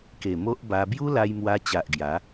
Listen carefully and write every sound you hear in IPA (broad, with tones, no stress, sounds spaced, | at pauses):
k e˨˩ m o˦ ʔ b a˧ b j u˦ l a˧ j m w a˧ t͡ɕ a˨ ʔ ɡ j a˨˦